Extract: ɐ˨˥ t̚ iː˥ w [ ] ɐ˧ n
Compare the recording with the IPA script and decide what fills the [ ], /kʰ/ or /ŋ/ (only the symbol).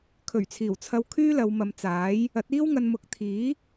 ŋ